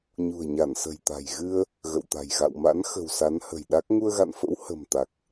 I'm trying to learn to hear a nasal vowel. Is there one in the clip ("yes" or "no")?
no